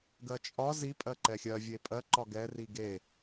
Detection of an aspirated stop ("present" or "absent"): absent